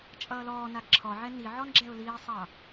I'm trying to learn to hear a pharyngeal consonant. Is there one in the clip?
yes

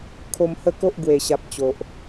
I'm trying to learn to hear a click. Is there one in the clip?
no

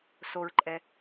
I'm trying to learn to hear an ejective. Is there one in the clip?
yes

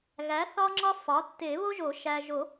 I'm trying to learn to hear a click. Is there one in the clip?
yes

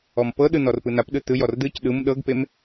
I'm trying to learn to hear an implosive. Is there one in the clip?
yes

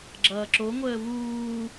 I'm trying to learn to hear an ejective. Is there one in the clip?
no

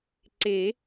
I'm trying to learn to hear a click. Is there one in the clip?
yes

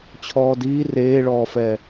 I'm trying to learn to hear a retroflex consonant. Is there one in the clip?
yes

